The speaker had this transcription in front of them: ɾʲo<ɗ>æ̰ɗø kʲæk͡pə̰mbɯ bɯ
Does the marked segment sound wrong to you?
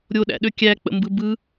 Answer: no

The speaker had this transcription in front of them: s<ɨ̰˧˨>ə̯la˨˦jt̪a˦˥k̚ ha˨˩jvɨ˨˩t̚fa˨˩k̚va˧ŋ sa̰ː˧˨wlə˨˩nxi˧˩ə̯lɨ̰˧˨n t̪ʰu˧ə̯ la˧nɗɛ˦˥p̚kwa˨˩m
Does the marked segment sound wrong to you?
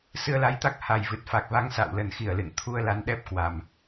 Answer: yes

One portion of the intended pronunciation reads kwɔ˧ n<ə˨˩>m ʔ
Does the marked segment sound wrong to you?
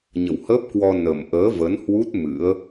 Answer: no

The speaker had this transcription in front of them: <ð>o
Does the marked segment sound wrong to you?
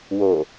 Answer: yes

